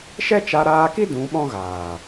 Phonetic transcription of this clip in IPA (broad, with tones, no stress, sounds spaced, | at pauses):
ʃ ɛ˦ t͡ʃ a˧ ɾ aː˧ k i˦ d ũ˨˦ ɓ ɔ̃˦ ɣ aː˨